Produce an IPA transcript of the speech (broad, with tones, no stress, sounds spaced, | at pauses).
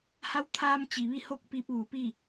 h a˧˥ w t̪ʰ aː˧ m t͡ɕ i˩ ʋ i˥˨ h o˥˨ k̚ p i˧ p̚ ʋ u˩˧ p i˥˨